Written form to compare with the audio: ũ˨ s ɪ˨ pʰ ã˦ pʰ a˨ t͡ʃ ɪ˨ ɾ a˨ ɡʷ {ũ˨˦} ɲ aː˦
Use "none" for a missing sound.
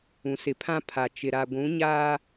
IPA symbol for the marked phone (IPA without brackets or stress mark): ũ˨˦